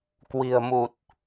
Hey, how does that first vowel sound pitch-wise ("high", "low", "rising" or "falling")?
low